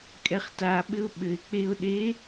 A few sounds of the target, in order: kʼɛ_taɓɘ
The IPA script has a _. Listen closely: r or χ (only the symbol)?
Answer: χ